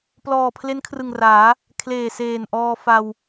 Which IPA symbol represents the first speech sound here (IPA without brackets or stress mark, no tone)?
p